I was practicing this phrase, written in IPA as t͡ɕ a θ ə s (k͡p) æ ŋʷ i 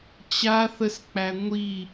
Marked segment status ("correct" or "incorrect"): correct